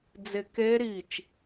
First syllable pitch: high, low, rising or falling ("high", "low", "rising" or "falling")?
falling